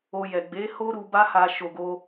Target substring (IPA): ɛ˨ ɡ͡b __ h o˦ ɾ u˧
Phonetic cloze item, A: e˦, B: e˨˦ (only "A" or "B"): B